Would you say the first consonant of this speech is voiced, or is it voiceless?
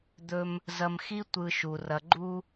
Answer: voiced